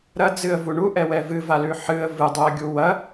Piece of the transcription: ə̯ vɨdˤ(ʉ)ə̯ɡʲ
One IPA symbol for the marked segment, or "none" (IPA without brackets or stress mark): ʉ